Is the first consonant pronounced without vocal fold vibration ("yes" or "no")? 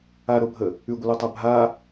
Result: no